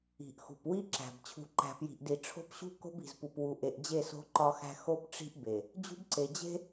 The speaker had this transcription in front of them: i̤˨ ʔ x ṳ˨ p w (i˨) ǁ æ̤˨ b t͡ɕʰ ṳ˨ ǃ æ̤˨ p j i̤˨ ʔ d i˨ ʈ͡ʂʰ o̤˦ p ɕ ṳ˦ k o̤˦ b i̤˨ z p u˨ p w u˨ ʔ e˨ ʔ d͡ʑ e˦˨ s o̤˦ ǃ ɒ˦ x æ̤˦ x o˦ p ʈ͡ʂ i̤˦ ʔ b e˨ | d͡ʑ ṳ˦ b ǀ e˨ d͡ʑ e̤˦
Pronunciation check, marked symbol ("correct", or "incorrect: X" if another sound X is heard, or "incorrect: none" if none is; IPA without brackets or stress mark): incorrect: i˦